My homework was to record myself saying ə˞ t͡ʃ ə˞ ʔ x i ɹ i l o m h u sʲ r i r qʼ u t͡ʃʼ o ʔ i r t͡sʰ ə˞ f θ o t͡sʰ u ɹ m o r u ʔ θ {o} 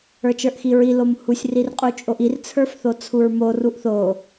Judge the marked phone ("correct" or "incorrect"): correct